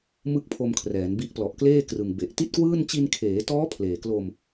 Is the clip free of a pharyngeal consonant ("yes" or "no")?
yes